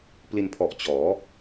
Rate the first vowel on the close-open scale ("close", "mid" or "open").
close